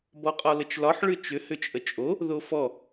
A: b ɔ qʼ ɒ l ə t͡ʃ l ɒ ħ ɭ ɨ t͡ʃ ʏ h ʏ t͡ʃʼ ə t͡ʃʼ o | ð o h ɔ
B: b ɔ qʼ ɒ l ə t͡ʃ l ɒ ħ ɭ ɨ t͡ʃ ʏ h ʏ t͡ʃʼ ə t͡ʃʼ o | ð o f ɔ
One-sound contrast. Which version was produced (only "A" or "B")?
B